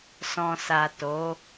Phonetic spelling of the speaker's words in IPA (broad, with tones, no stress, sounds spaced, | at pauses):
s ɔ̃˨ s a˨ t o˨˦